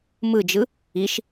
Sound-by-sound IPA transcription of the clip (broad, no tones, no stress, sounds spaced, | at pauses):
m ɯ d͡ʒ ɯ | i ʃ